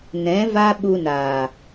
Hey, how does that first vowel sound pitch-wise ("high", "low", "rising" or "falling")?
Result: rising